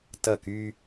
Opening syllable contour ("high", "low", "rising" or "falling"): falling